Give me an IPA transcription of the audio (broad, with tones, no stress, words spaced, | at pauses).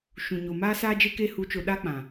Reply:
ʃũ˨ ɲo˨maː˧ saː˦d͡ʒe˦ke˦˨ hu˨˦t͡ʃo˨ ɗa˧k͡pã˨